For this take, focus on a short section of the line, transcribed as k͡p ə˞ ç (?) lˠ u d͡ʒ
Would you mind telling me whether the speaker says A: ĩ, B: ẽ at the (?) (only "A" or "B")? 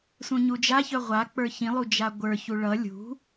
A